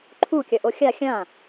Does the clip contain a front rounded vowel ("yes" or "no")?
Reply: no